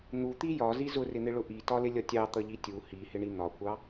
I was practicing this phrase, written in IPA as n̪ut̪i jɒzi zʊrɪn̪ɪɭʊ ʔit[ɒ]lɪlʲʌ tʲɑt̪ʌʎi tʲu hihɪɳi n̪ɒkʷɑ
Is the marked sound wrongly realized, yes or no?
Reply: no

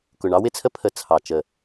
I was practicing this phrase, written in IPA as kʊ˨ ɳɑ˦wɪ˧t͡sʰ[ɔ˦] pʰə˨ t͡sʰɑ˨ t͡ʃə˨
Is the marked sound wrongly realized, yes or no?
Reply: yes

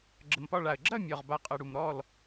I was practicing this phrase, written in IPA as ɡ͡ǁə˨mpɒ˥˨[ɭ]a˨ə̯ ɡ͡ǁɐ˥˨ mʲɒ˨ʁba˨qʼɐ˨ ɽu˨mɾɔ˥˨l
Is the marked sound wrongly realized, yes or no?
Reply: no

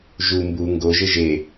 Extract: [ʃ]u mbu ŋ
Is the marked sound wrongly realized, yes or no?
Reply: yes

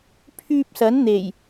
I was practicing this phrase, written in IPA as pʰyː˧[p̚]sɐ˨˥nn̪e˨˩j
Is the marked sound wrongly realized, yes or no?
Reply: no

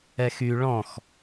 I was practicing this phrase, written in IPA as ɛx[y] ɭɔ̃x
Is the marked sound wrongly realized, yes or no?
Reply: no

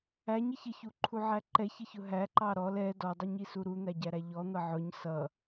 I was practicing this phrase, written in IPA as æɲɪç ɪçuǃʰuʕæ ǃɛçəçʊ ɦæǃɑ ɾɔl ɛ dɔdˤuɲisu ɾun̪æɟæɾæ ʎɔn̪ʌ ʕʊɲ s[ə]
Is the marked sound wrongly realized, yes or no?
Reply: yes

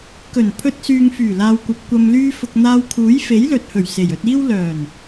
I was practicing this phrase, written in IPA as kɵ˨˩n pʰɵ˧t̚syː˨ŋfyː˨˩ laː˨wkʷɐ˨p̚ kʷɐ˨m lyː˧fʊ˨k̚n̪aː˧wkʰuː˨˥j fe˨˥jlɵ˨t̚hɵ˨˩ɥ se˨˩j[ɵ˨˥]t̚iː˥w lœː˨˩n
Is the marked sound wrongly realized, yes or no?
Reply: yes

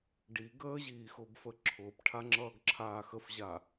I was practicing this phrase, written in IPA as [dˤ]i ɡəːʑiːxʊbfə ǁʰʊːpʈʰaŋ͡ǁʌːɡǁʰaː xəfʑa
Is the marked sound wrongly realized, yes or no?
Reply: yes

